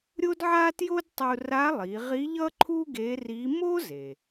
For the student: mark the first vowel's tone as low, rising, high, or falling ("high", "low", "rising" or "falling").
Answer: high